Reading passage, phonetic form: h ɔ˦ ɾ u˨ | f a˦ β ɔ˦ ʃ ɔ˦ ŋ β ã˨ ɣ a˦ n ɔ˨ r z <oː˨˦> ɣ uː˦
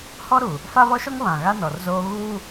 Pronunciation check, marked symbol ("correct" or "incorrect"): incorrect